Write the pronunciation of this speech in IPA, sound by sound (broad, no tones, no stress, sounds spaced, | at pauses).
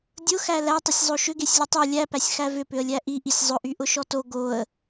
dʲ ʊ x æ l æ tˤ ʏ sʲ zˤ o ʃ ʏ ɡ e sʲ lʲ ʊ tˤ u lʲ æ p æ sʲ x æ v ʏ p ʏ ə̯ lʲ æ ʔ i ʔ i sʲ zˤ ʊ ʔ y ʔ ʊ ʃ ɔ t o ɡ o ə̯